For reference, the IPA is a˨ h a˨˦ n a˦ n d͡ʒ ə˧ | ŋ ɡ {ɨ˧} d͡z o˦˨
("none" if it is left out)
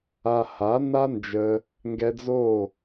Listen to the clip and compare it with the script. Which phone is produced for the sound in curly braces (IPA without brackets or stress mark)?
ɛ˧